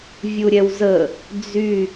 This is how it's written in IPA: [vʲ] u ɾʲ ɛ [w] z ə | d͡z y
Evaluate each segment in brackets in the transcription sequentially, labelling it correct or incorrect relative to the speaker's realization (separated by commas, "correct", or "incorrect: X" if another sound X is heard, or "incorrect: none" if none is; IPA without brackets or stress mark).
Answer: correct, correct